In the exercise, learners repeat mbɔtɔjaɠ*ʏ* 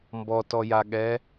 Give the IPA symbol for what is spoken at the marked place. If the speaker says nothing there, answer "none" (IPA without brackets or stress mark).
ɛ